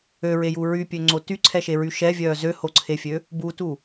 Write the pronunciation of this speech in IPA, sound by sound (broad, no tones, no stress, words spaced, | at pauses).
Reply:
øɹeju ɹypʲøŋ͡ǀo tyǀʰɛʃeɹy ʃɛvʲœː zøhoǀʰefʲø | butu